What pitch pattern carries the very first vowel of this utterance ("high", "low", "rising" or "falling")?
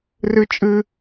high